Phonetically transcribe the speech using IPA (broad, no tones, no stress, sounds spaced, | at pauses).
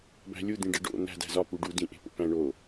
b æ̤ lʲ u d̪ ĩ ɖ e ɖ o̰ n̪ æ̤ d æ̤ z ɒ p u ɖ u d ĩ ʔ e̤ p o̰ p æ̃ ɳ o